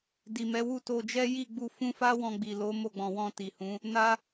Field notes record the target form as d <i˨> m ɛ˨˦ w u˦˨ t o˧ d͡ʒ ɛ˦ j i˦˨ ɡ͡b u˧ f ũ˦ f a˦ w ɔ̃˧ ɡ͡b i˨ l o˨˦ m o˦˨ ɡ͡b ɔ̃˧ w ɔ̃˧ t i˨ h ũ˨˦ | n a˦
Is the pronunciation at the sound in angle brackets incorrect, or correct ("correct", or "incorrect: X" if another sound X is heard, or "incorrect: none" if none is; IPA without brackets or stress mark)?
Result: correct